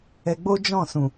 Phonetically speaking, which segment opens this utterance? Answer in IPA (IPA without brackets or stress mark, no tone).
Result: ɛ